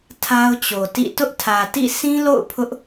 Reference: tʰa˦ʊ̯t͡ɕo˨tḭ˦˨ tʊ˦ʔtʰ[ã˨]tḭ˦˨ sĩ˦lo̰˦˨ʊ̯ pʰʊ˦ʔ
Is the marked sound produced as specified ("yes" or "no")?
no